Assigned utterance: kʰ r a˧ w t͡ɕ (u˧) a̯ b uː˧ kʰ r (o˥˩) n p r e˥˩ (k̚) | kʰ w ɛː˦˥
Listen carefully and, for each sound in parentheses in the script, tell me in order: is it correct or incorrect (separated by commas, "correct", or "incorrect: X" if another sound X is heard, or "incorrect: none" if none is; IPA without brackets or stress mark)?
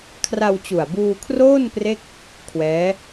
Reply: incorrect: u˨˩, incorrect: oː˥˩, correct